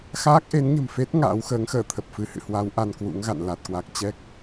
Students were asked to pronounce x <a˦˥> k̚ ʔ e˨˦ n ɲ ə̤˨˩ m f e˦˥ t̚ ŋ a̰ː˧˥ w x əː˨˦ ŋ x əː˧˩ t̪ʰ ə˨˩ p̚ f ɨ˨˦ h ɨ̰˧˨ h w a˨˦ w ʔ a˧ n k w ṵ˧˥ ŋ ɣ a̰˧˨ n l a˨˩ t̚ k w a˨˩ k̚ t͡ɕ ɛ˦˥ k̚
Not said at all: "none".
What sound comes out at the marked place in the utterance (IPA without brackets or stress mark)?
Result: aː˦˥